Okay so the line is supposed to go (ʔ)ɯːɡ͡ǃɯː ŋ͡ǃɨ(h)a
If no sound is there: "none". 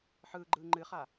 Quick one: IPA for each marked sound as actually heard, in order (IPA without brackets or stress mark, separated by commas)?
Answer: ħ, χ